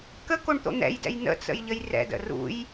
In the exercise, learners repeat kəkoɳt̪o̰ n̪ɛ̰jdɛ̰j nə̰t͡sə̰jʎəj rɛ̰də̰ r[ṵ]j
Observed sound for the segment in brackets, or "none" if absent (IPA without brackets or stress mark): ṵ